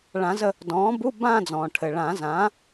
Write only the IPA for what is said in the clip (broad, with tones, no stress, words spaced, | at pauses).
ɭã˨˩˦zə˦˨ | dɔ̃ː˩˥bu˧˥˧ bãː˦˨d͡zɔ̃ː˩ʈʰɘ˩ ɭã˨˩˦zã˩˥